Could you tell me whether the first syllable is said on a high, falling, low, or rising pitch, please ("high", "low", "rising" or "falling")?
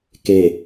low